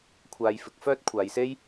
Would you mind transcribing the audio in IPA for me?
kʷʰ aː˧ j f ɪ˨˥ k̚ f œː˥ t̚ kʷʰ aː˨˧ j s e˥ j

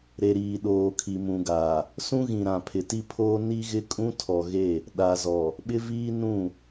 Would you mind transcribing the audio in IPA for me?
ɾ e˨ ɾ iː˨ ɗ oː˨ kʰ i˨ m ũ˨ ɡ aː˨ | s ũ˦ ɣ ĩ˨ ɾ ã˨ pʰ ɪ˨ t i˦ pʰ oː˦ n i˦ ɣ ɪ˦ kʼ ũ˦ tʰ ɔ˨ ɣ e˦˨ | ɗ a˨ z ɔ˨ | ɓ ɪ˦ v iː˦ n ũ˦˨

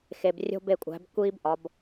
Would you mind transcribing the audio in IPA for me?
x e˨ b rʲ o̤˦ b e˦˨ kʷʼ æ̤˨˦ b kʷ iː˦ b ʔ ɒ˨˦ b

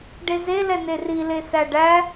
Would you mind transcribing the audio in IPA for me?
ɖ e z e l ɛ n e r i l e s æ ɖ æ

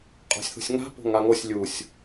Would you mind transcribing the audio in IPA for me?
qʼ o̤ sʲ θ o̤ sʲ ŋ a̤ p o̤ ŋ a ŋ o sʲ lʲ u sʲ

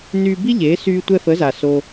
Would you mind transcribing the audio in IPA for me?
n y˧ b i˥ ʎ e˩˥ s y˧ tʷ ɛ˧ f ə˩˥ z a˩ s o˧

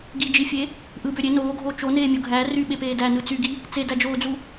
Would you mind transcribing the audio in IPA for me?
ɡ i d͡ʒ i fʲ e | ʔ ɯ b ø ɾʲ e n oː ɡʱ oː t͡ʃ o n eː mʲ o ɡʱ æ r y ɓ e p eː d æ n ɯ t͡s y ɡ i | t͡s e d æ d͡ʒ oː d͡z u

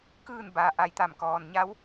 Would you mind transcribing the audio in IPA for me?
k ɯː˥˨ n b a˩ ʔ a˧˩ j t̪ a˧˩ m k ɔː˩ n ɲ a˧˥ w

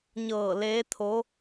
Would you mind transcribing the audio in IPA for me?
ɲ ɤː˧˩ l eː˧˥ t̪ʰ o˧˥

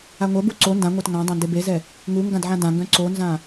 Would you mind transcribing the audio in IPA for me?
a ŋʷ œ b u ǀ o n d ã ŋʷ a t ŋ ã dˤ ã n d e b e z ɛ | ŋ u ŋ ɡ ã d ʕ ã d ã ŋ ɡ œ̃ ǀ o n z ã

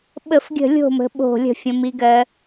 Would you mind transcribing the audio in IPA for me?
ɓ ə˥˨ f ɡʲ ə̤˥˨ lʲ o̤˥˨ m ə̤˨˦ ɓ o̤˥˨ lʲ ə̤˥˨ fʲ ə̃˨˦ m i˨˦ ɡ ɜ˨˦

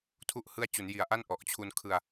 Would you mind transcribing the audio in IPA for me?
tʰ u˥˩ ʔ h ɯ˥˩ a̯ t͡ɕ u˩˦ n j i˨˩ a̯ ʔ a˥˩ n ʔ ɔ˨˩ ʔ t͡ɕʰ u˧ n kʰ ɯ˧ a̯

